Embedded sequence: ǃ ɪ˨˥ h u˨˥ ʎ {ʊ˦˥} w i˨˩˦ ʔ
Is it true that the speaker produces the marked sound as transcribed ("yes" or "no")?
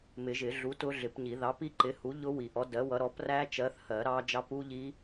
yes